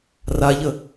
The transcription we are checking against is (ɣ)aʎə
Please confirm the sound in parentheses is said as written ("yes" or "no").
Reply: no